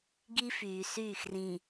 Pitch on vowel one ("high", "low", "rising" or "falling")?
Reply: high